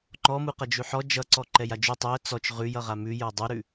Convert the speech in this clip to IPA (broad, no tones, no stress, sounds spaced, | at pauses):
ŋ͡ǃ ɔ m u q ʌ d͡ʒ ʉ ħ ɔ d͡ʒ ʌ ǀ ɔ ǃ ɛ j a d͡ʒ ʉ tˤ ʉ ə̯ t͡s ɔ t͡ʃ ʁ ʉ j ʌ ʁ a m ʉ j ə˞ dˤ u ɾ ʉ